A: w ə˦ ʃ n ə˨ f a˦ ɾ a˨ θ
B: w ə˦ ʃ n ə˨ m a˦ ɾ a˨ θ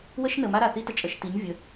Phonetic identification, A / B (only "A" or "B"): B